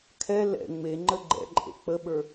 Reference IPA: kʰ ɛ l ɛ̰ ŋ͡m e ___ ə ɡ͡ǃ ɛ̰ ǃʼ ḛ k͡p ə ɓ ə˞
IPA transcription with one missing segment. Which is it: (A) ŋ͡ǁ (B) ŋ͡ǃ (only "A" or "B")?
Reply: B